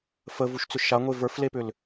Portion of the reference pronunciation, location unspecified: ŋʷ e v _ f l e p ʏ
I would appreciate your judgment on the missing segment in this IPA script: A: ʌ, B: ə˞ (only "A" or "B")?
B